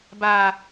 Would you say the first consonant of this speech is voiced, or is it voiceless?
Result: voiced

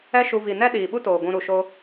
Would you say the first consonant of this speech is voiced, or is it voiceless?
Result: voiceless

